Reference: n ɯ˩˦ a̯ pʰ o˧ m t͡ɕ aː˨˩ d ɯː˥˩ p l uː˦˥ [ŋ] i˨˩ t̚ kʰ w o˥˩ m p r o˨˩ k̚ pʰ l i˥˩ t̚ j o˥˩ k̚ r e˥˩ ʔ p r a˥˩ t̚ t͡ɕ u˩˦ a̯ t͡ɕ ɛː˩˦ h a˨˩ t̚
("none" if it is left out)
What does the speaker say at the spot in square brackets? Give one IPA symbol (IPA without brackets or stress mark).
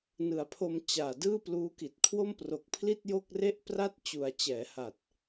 k